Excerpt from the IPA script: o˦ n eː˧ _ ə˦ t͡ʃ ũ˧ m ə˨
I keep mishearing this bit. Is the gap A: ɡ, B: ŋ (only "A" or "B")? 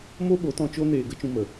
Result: A